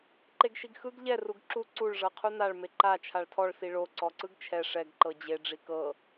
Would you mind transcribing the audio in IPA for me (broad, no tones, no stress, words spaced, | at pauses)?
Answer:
ǃeɡʃiɡxɯɡ ʎɛ ruɡǁu ǀuɭ ʐɤqʰunaɭ meǃa t͡ʃʰaɭtʰɔɭ siɭo ǀɔǀɯɡt͡ʃʰɛ ʂɛɡ ǃɤd͡ʑe ɖ͡ʐikɤ